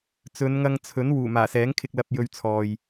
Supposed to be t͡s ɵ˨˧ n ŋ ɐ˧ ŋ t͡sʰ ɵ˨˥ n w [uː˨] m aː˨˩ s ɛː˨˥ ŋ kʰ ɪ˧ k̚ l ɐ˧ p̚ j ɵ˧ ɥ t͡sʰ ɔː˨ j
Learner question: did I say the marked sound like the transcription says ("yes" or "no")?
no